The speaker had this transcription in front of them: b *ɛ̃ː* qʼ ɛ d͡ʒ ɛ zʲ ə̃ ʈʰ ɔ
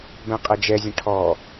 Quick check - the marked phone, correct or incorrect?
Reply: incorrect